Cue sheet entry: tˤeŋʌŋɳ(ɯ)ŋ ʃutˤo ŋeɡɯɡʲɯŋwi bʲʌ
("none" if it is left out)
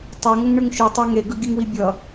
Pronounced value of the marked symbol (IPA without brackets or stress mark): ɯ